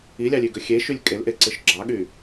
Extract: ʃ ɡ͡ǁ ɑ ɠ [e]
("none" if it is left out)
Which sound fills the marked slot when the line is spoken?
y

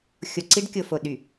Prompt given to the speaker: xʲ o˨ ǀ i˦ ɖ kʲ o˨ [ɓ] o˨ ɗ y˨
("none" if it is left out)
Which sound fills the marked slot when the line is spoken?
f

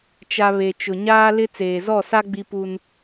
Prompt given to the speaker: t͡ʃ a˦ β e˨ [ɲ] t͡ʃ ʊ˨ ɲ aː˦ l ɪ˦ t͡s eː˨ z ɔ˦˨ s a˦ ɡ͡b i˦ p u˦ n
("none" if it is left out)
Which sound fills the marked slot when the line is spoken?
none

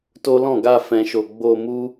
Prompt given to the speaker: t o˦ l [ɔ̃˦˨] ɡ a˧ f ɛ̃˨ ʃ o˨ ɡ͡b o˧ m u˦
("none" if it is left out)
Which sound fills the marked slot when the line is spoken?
ɔ̃˦˨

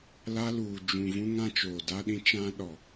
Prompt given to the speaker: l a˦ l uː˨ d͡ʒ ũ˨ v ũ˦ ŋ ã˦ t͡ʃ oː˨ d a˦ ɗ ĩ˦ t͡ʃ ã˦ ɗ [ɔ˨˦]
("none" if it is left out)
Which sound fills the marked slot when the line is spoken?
ɔ˨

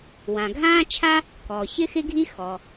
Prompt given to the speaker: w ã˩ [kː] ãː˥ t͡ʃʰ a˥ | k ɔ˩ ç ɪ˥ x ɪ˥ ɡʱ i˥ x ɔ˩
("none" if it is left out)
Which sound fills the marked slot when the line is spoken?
ɡʱ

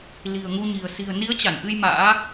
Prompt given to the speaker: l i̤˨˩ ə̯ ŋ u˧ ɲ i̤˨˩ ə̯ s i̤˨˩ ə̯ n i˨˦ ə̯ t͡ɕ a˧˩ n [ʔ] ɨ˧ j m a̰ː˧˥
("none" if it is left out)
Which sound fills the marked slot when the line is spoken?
ʔ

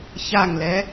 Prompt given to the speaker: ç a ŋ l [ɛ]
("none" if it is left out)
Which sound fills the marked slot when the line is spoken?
ɛ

